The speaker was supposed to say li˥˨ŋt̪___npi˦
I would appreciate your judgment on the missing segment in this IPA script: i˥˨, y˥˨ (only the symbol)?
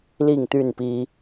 y˥˨